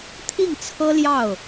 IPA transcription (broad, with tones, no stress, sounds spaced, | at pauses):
t̪ʰ i˥˩ ŋ t͡sʰ ɤ˥ l j ɑ˥˩ ʊ̯